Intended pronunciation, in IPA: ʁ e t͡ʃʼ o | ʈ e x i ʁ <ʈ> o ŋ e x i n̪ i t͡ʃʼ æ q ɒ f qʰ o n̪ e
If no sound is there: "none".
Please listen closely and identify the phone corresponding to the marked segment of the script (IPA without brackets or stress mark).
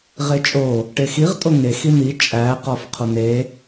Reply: tʼ